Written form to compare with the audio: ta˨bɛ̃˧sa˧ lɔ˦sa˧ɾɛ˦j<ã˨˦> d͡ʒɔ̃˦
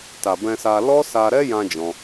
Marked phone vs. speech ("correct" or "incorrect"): incorrect